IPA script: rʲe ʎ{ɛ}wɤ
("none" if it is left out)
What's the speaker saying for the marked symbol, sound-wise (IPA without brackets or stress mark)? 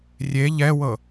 ɛ